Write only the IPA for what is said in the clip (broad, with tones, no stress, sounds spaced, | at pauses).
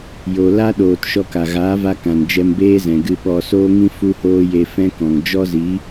j o˨ l a˦ ɗ oː˨ t ʃ ɔ˧ k a˨ ɣ aː˨˦ v a˧ k ã˨ n d͡ʒ ɛ˧ m b eː˦ z ɛ̃˨ ɡ ɨ˧ ɓ ɔ˧ s oː˦ ŋ ĩ˦ f u˦ h oː˦ j e˧ f ɛ̃˦ k ɔ̃˨ ŋ d͡ʒ ɔ˦ z i˨˦